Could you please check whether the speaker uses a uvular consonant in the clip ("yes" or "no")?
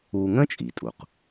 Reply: yes